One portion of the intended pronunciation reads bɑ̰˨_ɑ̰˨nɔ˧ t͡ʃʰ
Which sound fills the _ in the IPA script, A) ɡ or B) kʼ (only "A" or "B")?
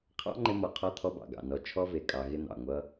A